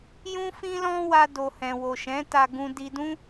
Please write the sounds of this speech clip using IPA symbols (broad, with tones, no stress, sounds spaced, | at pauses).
j ũ˦ f ĩ˦ l ɔ̃˦ w a˧ d o˨ h ɛ̃˨ w o˨ ʃ ɛ̃˨˦ t a˧ ɡ ũ˧ d i˧ d ũ˦